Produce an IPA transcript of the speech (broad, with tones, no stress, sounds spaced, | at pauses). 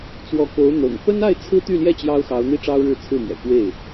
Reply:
t͡s w ɔ˧˥ k o˧˥ ʊ̯ n̪ ɤ̰˨˩ ŋ p ə˥ n a˥˩ ɪ̯ t͡sʰ ɹ̩˥ t̪ y˥˧ l j ɛ˥˩ t͡ɕ j ɑ˥ ʊ̯ x ɑ˧˥ ʊ̯ n̪ i˥ ʈ͡ʂ ɑ˥ ʊ̯ ɻ ɻ̩˥˧ t͡sʰ ɹ̩˥˩ m ɥ ɛ̰˨˩ k w e˥˩ ɪ̯